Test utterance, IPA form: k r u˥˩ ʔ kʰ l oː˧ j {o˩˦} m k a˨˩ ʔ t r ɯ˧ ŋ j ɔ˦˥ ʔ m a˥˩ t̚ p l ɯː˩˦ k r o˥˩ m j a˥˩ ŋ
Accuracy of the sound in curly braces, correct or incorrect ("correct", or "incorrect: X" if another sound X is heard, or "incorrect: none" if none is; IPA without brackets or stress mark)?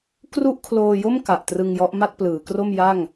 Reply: incorrect: o˥˩